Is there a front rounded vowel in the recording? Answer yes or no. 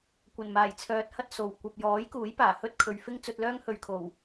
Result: yes